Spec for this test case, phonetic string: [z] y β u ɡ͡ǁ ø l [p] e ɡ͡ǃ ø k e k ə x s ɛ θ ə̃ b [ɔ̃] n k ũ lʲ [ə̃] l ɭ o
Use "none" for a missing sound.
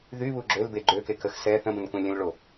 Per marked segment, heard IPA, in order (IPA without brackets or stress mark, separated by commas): ð, b, ə̃, ə̃